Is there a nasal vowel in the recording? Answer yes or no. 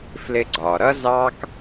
no